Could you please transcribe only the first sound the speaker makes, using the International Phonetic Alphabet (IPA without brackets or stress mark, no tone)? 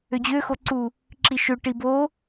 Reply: ø